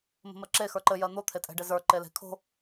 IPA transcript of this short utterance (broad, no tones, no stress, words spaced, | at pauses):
mə̤mɜǁe xə˞ǃɘ jɜn̪o t̪ʰetʼɛ̤ɖezə˞ ǃele̤kʰo̤